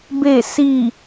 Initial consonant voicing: voiced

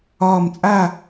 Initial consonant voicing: voiced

